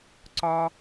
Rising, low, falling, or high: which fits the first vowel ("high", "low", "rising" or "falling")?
high